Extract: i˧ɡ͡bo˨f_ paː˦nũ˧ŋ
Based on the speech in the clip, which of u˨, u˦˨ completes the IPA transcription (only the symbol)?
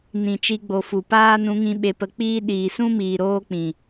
u˨